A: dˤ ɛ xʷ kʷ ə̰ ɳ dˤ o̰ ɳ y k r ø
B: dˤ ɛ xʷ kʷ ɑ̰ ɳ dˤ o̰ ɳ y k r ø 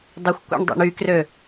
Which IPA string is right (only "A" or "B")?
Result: A